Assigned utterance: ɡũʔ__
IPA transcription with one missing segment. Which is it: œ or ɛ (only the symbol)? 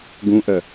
œ